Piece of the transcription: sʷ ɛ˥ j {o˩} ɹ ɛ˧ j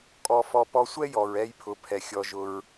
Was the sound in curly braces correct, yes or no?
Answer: no